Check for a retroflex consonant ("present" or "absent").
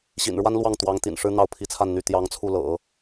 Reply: present